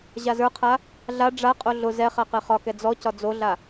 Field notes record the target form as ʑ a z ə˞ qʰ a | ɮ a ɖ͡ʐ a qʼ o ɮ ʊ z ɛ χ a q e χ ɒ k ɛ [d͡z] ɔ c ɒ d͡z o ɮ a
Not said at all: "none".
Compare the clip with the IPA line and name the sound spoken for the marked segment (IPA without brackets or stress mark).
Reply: d͡z